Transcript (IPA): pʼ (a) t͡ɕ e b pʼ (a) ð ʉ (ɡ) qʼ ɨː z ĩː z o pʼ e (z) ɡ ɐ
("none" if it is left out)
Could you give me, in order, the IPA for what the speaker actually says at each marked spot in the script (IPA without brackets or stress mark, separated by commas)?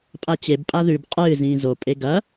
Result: a, a, b, none